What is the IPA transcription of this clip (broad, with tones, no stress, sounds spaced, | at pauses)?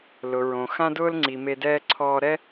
l ʊ˩ ɹ õ˩ x ã˥ d ʊː˥ l ŋ͡ǀ i˩ m e˧ d ɛː˥ ǀʰ ɔː˧ ɾ ɛ˥